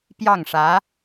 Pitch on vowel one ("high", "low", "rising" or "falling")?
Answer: falling